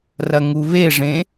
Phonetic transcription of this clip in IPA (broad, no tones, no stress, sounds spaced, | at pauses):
r ɐ ŋ u β e ʐ ẽ